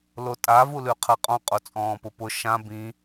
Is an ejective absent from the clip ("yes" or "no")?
no